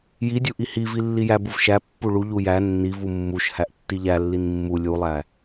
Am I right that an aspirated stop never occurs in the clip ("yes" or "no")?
yes